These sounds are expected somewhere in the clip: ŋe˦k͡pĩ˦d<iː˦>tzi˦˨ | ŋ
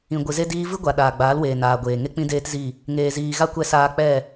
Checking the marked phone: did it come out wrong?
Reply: yes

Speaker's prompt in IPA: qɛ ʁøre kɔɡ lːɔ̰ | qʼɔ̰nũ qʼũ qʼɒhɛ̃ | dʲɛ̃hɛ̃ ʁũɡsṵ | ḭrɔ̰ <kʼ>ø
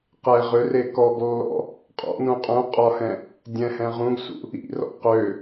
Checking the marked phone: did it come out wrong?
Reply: yes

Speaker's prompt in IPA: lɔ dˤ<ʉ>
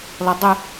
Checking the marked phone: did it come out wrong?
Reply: yes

